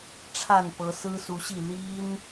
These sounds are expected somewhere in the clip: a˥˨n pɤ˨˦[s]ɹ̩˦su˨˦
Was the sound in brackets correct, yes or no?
yes